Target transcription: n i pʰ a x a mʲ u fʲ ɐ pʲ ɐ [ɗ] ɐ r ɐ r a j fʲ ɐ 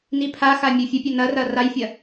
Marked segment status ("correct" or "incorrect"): incorrect